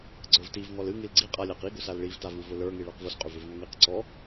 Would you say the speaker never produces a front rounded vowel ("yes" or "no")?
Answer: no